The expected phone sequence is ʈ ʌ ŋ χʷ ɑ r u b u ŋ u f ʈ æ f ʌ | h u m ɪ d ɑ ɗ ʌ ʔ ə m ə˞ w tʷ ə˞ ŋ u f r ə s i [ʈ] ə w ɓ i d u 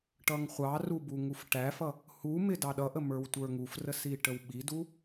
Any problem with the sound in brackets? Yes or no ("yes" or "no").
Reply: no